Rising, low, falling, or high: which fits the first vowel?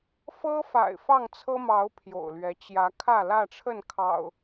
high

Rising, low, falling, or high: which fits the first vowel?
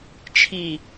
low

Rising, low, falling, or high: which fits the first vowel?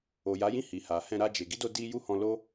low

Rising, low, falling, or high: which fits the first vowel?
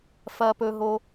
low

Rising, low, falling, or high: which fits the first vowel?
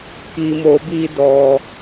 low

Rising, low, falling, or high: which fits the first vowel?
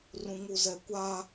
high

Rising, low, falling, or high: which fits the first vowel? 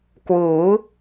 rising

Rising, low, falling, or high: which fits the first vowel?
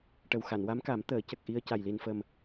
low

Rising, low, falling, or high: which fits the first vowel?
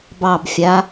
falling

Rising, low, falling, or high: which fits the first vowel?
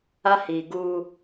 high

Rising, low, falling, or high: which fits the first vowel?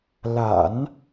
low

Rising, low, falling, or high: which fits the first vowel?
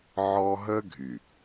high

